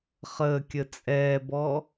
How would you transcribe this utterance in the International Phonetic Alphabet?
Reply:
χ əː kʲ ə t͡sʼ ɛː b ɔ

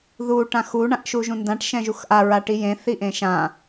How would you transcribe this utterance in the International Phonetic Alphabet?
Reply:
ð u ʈ ã x u ɳ ã ʔ ʃ u ʒ ũ n d ã ʈ ʃ ɛ̃ ʒ u x ʔ a ɹ a ʈ i j ẽ θ i ʔ ẽ ʃ ã

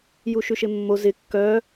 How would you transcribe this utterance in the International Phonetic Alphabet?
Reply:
j u ʃ ʉ ʃ ɪ mː o z ɪ kː œː

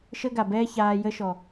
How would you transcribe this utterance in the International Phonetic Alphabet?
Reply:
ʃ ə˦ ɡ a˨ b ɛː˦ ç aː˨ j ə˦ ʃ ɔ˨

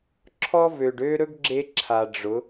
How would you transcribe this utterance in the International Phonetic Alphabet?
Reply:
ǁʰ ɔ˦ v ø˨ ɖ ø˦ ɾ ɵ˦ ɡ ɡ͡ǁ e˧ ǁʰ a˨ ɖ͡ʐ ʊ˨˦

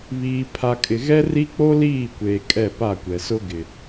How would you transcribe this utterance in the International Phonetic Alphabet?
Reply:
β iː˨ pʰ a˨ kʼ ɪ˨ ɣ ɛ˦ r i˦ k͡p o˦ l iː˦˨ kʷ eː˨ kʼ ɛ˦˨ p a˦˨ kʷ ɛ˨ s ʊ˦ ɡ ɪ˨

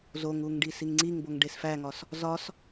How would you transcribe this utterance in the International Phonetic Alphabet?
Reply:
z o ŋ u ŋ ɖ i s i ŋ ŋ͡ǀ i ŋ b o ŋ ɖ e s f æ ŋ ɒ s | z ɒ s

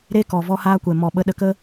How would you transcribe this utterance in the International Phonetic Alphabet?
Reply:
ɾ e˦ k ɔ˨ v ɔ˦ h aː˦ kʷ ɛ˨ m ɔ˨ ɓ ə˧ ɗ ə˧ k ə˦

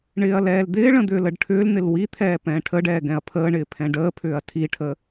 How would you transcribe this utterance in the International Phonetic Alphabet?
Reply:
ɳ ɪː ɐ̯ l ɛː l d̪ ɪː ɭ ə̃ d̪ ʏː l ə ɖ ʈʰ ʏː l n̪ ɪ l w i t̪ʰ ɛː p ɛ̃ː ʈʰ ə ɖ ɛː ɡ ɛ̃ ɐ̯ pʰ əː ɳ ɪː pʰ ɛ̃ ɖ əː pʰ ʏː ɐ̯ tʰ i ʈʰ ə

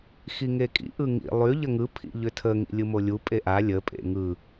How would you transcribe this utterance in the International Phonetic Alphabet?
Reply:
x i ŋ e kʼ ḭ ʔ ɯ ŋ ḭ lˠ y ʎ ə ŋ ɯ pʰ ḭ ʎ ʏ tʰ ə ŋ ḭ lʲ ɯ m o lʲ u pʼ e ʔ a lʲ ə pʼ ḛ ŋ ɯ

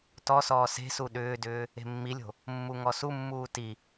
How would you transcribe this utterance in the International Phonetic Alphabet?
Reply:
t ɔ s ɔː s e̤ s u ɗ ʏː d ʏː | e̤ mː i lʲ o̤ | mː u ŋ ɔ s u mː uː t i

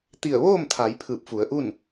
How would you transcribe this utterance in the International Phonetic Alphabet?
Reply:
t̪ i˧˩ ə̯ ʋ oː˥˨ m t̪ʰ a˩˧ j pʰ ɯː˧˩ p̚ f u˩˧ ə̯ ʔ u˥˨ n

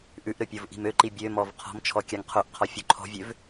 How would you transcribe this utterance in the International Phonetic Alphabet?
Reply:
ʔ ʉ ʔ ɾ ɵ pʲ o v ʔ i̤ m ø ǃ i bʲ ø m ɔ v qʰ ɔ̤ m t͡ʃʰ ɔ kʲ a ŋ qʰ o ʔ qʰ ɔ fʲ o ǃʰ ɔ̤ vʲ ø v

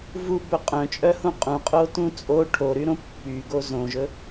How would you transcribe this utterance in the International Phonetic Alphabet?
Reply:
v u b ɵ qʼ œ̃ t͡ʃʼ œ h ũ qʼ ũ qʼ o t ũ t͡sʼ o ʈʰ o ɾ y ɾ õ pː y ɡ o z õ ʒ ɵ

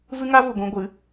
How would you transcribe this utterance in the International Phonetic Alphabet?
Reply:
v ɨ˦ ŋ a˦ v u˨ ɡʷ ĩ˧ ɡʷ ɨ˨˦

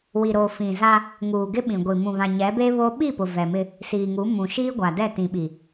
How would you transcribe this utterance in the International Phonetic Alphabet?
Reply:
w i˨ ɾ o˨ f ĩ˨ z a˦ | ŋ uː˨ ɡ ɪ˦ ɓ ĩ˨ ɡʷ i˨ m ũ˨ β ã˨ ɲ ɛ˨˦ b e˦ β o˦ ɓ i˦˨ p ʊ˨ v ɛ˨ m ɪ˦ | s iː˨ ŋ u˨˦ m ũ˨ ʃ iː˦ ɡʷ a˨ d ɛ˦˨ t ĩ˨ ɓ i˨

